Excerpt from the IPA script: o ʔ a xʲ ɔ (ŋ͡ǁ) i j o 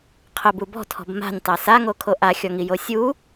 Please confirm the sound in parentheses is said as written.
no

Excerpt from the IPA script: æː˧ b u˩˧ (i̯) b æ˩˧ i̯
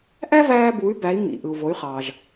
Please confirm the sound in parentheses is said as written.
no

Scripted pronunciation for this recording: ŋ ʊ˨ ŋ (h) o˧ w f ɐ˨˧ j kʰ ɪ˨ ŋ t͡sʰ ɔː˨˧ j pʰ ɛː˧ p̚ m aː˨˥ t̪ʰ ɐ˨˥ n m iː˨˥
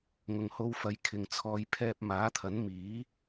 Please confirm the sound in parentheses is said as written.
yes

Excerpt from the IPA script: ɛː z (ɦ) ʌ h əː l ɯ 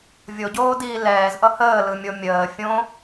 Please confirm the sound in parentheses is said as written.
no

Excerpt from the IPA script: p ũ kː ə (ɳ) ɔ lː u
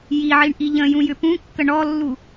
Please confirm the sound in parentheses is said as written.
yes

